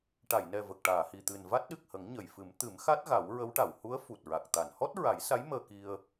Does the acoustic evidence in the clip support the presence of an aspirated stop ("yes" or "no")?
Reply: no